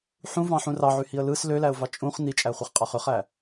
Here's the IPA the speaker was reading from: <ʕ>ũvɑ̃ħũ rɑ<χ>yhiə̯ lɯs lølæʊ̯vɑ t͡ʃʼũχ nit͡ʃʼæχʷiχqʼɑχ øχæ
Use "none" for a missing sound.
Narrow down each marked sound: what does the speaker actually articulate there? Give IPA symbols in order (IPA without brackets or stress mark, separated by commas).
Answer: ħ, ʕ